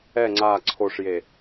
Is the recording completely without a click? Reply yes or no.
no